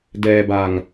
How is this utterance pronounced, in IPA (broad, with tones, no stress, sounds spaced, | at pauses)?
d ɛː˧ b a˧ ŋ